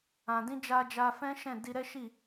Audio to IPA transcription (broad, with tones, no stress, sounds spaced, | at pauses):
ã˨ d ĩ˧ d͡ʒ a˧ d͡ʒ a˧ f ɛ̃˦ ʃ ɛ̃˦˨ d i˧ ɾ ɛ˦ ʃ i˦˨